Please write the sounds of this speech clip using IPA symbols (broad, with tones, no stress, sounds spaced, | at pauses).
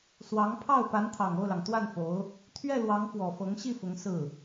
s w ɑ˧˥ ŋ pʰ ɑ˥˩ ʊ̯ p a˧˥ n t̪ʰ ɑ˨˩ ŋ o˥˩ ʊ̯ l ɑ˩ ŋ t̪ w a˥˩ n f o˧˥ ʊ̯ | t̪ʰ ɥ ɛ˥˩ l w ɑ˧˥ ŋ f w ɔ˨˩ f ɤ˧˥ ŋ ɕ i˥˩ f ʊ˧˥ ŋ s ɹ̩˥˩